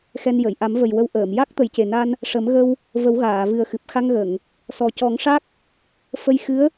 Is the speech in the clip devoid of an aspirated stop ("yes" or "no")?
yes